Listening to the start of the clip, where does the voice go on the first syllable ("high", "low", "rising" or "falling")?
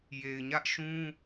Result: low